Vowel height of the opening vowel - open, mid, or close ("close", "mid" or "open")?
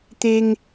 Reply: mid